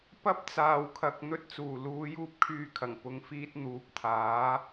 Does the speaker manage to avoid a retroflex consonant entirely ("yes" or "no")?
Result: yes